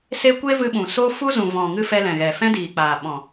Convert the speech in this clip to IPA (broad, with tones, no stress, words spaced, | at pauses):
se˦ kʷe˦vɨ˧ɓũ˨so˦ fu˦zũ˨ vɔ̃˨ŋɨ˧ fɛ˧lɛ̃˨ɣɛ˨fɛ̃˦ diː˨ k͡paː˨ɓɔ̃˨